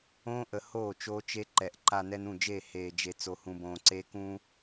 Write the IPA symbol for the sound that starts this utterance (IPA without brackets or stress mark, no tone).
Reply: õː